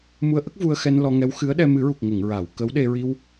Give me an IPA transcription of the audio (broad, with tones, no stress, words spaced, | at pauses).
mu˧ə̯ʔə˦˥k̚ vu˧ə̯xɛ˧n lɔ˧ŋɛ˧˥w xɨ˧˥ə̯ɗɛ˧ mɨ˨˩˦ɹu˨˩k̚ ŋə˨˩˨ŋɹa˨˩˨w kə˧˥wɗe˧ ɹi˧w